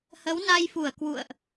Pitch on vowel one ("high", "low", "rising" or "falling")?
rising